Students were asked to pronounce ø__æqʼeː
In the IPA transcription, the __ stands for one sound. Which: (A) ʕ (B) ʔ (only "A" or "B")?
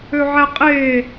A